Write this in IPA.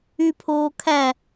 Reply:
y pʰ oː kʰ æ

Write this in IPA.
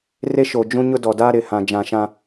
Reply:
r e˦ ʃ o˨ d͡ʒ ũ˦ ɲ ʊ˦ d ɔ˨ d aː˦ ɾ ɪ˨ h ã˨ d͡ʒ ã˨ ʃ ã˦

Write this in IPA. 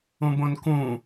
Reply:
ũ b õ n k ũ

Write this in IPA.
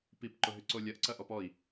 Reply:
p i p ǃ ʊ ɦ ʏ ǀ o lʲ ɐ ʔ ǀ ɐ ʔ ɔ p ɔ i̯

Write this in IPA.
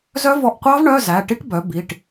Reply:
z œ˦˥ v ɔ˧ ʔ qʷ ɑ˦˥ v ɳ œ˧˥˧ z æ˩˧˩ ʈ i˦˥ ʈ b œ˩˥ b i˩˧˩ ʈ

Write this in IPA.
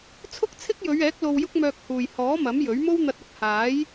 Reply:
t͡sʰ ʊ˥ k̚ t͡sʰ ɪ˥ k̚ j ɵ˨˧ ɥ ɛː˨˥ k̚ l o˧ w j ʊ˥ k̚ m œː˧ k̚ h uː˨˩ j h ɔː˨˥ m ɐ˨˥ m j ɵ˨˥ ɥ m o˥ w n̪ ɐ˧ t̚ ɐ˧ k̚ h aː˨˥ j

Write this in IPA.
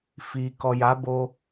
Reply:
f i˨ k ɔ˨ j a˨˦ b o˧

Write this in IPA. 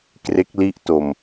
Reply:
k r e˦˥ k̚ l i˦˥ ʔ t o˧ m

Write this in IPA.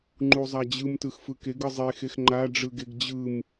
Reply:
ŋ͡ǃ u zˤ a d͡ʑ ɯ m t ɯ x f ɯ k e ɡ ɯ zˤ e x e x ŋ͡ǃ a ɖ͡ʐ ɯ ɡ e ɡ d͡ʑ ɯ m

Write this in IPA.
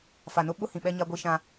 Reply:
f a˨ n ʊ˦ ɓ ʊ˦ h ĩ˨ ɓ ɛ˦ ɲ a˦ ɡʷ i˦ ʃ ã˦

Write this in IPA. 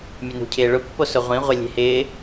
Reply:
mʲ ʊ n ṳ cʰ ɪː ɭ ʊ pː o s ʊ ʁʷ ĩ ʁʷ e lʲ e̤ h ɪː

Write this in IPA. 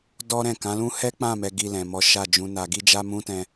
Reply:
d ɔ˦ ɾ ɛ̃˦˨ k ã˨˦ l ũ˦ h ɛ˦ k͡p ã˦˨ m ɛ˨ ɡ i˨ l ɛ̃˨ m ɔ˨˦ ʃ a˦˨ d͡ʒ ũ˨˦ n a˧ ɡ i˦ d͡ʒ a˦ m ũ˦ t ɛ̃˧

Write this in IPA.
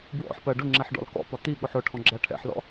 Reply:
b w ɔ̰ ħ p ɜ ɖ ʊ ŋ͡ǁ ɛ ħ ɖ ɔ̰ l k ɔ̰ p ɒ t̪ i ɠ ʊ ħ ʊ ʈʰ ɔ̃ ɡ͡ǁ æ ʈʰ ɛ̰ ħ l ɔ̰

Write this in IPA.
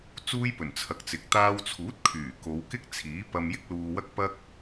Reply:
t͡s uː˥ j p ɵ˨˩ n t͡sʰ ɐ˨ k̚ t͡s ɪ˨ k̚ t̪ aː˧ w t͡sʰ uː˨˥ t̚ kʰ yː˨˩ k o˨˧ w k ɪ˥ k̚ t͡sʰ iː˨˥ p ɐ˧ m j ɪ˥ k̚ l uː˧ w ɐ˥ k̚ p ɐ˥ k̚

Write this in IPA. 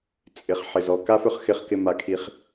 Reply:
t͡sʼ ɪ˩ χ ħ ɪ˩ z ɔ˩ k a˦ f ɵ˦ χ x ɪ˨ χ k ɪ˨ m a˩ kʰ i˩ χ

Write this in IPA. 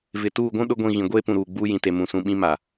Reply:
v ɪ˨ t uː˦˨ ɡʷ ũ˦ ɗ ʊ˦ ɡʷ ĩ˦˨ ɣ ĩ˨ ɡʷ eː˦ p ũ˨ ɾ uː˨ ɡ͡b uː˦ j ĩ˨ t e˨ m ũ˨ s ũ˨ ɓ ĩ˦ m a˨

